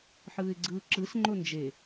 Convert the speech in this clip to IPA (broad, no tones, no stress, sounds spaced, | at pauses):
ħ ɯː ɪ̯ ɡ͡ǀ ɯː ǁ ɯ s ŋ͡ǃ o n d͡ʒ e